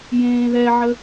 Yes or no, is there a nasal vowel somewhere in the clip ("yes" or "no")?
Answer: yes